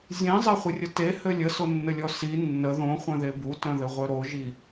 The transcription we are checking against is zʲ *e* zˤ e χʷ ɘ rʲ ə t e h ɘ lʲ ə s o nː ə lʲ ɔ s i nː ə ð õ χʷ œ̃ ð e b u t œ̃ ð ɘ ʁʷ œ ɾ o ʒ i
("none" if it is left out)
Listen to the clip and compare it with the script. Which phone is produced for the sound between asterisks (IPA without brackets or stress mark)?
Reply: ẽ